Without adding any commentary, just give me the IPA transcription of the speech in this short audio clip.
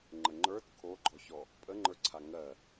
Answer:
ŋ͡ǃ ə ŋ͡ǃ ə˞ t kʰ o ɡ͡ǃ ɔ ç ɔ | pʼ ə ŋ͡ǃ ə˞ ǀʰ a ŋ ɜ

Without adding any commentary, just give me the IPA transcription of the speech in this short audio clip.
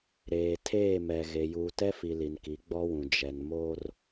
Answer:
ɾ eː˨ tʰ eː˦˨ m ɛ˨ ɣ e˨ j uː˨ t ɛ˦ f i˨ l i˨ n k i˨˦ ɡ͡b ɔ˦ w ũ˨ d͡ʒ ɛ˨ n m o˦ r

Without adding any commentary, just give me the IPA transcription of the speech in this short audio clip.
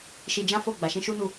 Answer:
ʃ i˧ d͡ʒ ã˦ f o˦˨ ɡ͡b a˨ ʃ ĩ˧ ʃ u˦ n u˦˨

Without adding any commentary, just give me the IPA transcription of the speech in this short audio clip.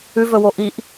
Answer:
ʉ v ɵ w o ʔ i ʔ

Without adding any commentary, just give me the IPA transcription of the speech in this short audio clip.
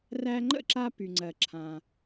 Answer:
r æ˧ ŋ͡ǃ ə̰˥˩ ǁ a˧ p y˩ ŋ͡ǀ ɜ˩ ǁʰ ã˩

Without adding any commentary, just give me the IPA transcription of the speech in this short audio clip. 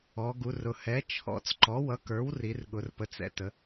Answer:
ɔ˩˧ ɡ u˩˧ r ʊ˩˧ h ɛ˩˥ t͡ʃʰ ɔ̰˩˥ t͡s ǃ ɔ˩˥ w ʌ˩˥ k ə˞˩˥ w r i˩˧ r ɠ ʊ˩˧ r p ə˩˧ t͡s ɛ̰˩˧ t ə˩˧

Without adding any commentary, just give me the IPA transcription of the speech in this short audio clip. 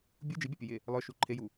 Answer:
bʲ u d͡ʒ i bʲ a pʲ ə j e | lˠ œ ʃ u ǃʰ e j u

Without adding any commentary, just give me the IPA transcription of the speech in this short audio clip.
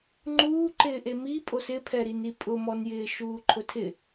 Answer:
ŋ͡ǃ uː ǃ ɪː ʔ e m i pʼ o s ɪ pʰ ɛ ɾ i n i pʼ ʊ m ɔ n j ɪː ʃ uː ǃʰ ʊ tʰ ɪ

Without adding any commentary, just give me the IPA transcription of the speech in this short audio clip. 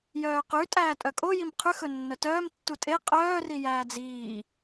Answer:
j œː q ʉ tʼ æː tʼ œ kʼ o j i m qʰ ʉ x ɵ nː œ t œː m tː u tʼ e qʼ œː r i j æː d͡z iː

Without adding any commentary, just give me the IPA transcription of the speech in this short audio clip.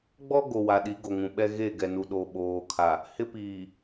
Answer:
ɡ͡b ɔ˦ ɡ o˨ w a˨ ɗ i˨˦ ɡ o˨ ŋ ũ˨ ɓ ɛ˦ ɣ e˦˨ ɡ ɛ˨ n u˨ ɗ o˨ ɓ oː˨ kʰ a˨ | h ɪ˦ p iː˨

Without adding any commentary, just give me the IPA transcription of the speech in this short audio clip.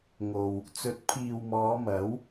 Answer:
ŋ o˨ w | t͡s ɵ˨˥ t̚ pʰ iː˨ w m ɔː˨˧ m ɐ˨˥ w

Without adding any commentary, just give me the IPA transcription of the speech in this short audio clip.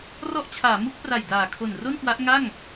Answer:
r ɔ˦˥ ʔ t͡ɕʰ aː˩˦ m u˦˥ k̚ p r a˨˩ j d aː˨˩ kʰ o˨˩ n r o˥˩ n k w a˦˥ ʔ ŋ a˥˩ ŋ

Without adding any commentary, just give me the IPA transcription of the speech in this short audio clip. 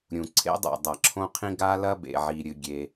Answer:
ɾʲ ũ˩ ǀʰ ḛ˥ dˤ o̰˩ dˤ ɐ˩ ǁʰ õ˥ qʰ ĩ˥ ɡ a˥ l ɐ˥ b ḛ˩ ʕ i˩ ɾʲ ɨ˩ ɡʲ e˩

